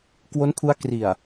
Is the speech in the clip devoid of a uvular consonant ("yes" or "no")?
yes